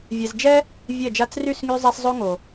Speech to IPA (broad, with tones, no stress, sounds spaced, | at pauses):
vʲ ɛ˨ z d͡ʒ ɛ˦ | vʲ ɛ˦˨ d͡ʒ a˦ t͡s r y˦˨ s ŋ y˧ zˤ a˧ s zˤ o˦ ŋ o˨